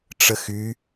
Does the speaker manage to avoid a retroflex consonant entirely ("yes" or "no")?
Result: no